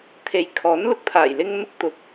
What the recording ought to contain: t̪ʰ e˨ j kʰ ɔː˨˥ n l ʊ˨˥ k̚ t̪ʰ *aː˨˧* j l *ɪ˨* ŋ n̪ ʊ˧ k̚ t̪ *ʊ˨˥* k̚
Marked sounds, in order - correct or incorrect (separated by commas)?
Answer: incorrect, incorrect, correct